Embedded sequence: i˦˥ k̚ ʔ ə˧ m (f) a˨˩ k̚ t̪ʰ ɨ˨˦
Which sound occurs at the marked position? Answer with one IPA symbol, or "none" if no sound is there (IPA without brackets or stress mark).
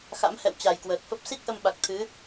ɓ